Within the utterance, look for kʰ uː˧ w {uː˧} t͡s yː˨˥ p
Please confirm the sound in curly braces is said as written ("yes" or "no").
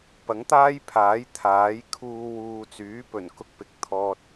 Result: no